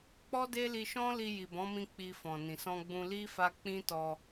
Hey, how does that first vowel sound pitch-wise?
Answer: high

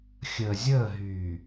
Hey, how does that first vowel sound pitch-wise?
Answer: low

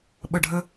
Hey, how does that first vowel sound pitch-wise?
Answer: falling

